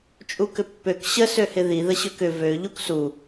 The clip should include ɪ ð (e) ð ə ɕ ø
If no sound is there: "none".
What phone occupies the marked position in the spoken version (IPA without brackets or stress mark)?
i